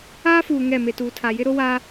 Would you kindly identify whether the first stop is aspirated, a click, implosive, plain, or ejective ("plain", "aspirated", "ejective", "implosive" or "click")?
plain